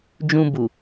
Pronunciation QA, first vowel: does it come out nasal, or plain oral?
nasal